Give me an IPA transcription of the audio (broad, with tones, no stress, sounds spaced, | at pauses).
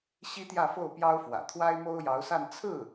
ɕ i˥ t̪ j ä˥˧ f o˥˩ ʊ̯ p j ɑ˥ ʊ̯ f w ä̰˨˩ t̪ʰ w a˥ ɪ̯ m o˥ ʊ̯ j ɑ˧˥ ʊ̯ s a˥˧ n t͡sʰ ɹ̩˥˩